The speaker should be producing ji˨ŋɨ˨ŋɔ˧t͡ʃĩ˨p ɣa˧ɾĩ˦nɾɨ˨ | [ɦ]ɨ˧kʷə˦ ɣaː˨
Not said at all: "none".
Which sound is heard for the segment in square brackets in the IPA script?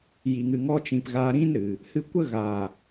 h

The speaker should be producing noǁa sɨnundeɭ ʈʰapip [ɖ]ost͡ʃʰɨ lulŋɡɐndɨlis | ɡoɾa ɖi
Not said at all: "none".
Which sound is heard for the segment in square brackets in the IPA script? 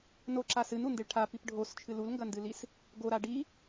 ɖʱ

